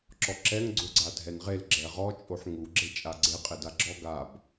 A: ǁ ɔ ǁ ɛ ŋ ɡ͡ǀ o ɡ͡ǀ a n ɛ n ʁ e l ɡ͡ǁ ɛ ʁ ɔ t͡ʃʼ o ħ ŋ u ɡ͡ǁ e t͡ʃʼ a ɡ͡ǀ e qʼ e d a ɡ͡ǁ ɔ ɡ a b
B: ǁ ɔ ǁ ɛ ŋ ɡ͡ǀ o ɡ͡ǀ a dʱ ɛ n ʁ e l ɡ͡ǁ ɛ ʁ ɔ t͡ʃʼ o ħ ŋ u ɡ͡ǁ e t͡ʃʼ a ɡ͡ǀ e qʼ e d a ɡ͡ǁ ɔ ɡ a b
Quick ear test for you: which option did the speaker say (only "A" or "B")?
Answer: B